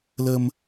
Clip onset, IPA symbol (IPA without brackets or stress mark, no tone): l